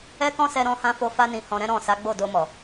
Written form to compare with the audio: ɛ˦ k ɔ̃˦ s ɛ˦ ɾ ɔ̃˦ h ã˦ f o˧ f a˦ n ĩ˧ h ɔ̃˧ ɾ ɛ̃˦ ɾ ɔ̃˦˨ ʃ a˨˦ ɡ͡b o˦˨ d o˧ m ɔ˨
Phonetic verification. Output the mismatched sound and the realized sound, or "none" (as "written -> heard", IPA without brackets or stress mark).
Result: ʃ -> s